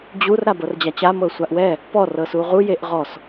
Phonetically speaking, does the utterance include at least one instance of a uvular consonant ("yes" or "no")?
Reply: yes